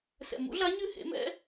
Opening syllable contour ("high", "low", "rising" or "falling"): low